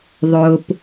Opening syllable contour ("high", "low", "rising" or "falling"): low